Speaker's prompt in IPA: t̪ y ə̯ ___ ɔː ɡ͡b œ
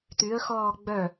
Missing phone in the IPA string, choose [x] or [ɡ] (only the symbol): x